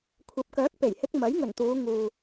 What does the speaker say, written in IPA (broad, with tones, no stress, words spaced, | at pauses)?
kʷʰɐ˨˥p̚kœː˨˥k̚pe˨˩jhɪ˧k̚ mɐ˨˥jŋɵ˨˩nt̪uː˨˧ ŋuː˨